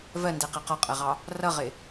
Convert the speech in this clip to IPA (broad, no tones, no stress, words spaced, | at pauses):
vɜndɛqɛ qɒqʼɜʁɑ | rʌʁɪ